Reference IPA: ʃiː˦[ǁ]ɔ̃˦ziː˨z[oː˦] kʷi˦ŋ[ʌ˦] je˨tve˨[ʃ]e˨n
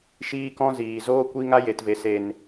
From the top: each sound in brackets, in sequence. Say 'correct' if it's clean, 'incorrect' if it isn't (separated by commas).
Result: incorrect, correct, incorrect, incorrect